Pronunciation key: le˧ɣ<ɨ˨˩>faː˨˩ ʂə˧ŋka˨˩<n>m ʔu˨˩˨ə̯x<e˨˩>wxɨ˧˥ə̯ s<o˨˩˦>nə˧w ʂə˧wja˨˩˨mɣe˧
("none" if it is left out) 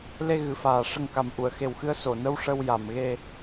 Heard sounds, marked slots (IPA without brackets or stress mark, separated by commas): ɨ˨˩, none, e˨˩, o˨˩˨